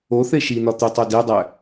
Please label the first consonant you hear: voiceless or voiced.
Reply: voiceless